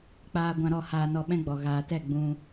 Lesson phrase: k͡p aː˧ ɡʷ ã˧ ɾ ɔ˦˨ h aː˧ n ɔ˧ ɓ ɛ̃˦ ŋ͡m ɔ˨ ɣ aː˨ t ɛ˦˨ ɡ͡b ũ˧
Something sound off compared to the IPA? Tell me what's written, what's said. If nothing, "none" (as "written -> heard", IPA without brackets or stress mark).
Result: ŋ͡m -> ɡ͡b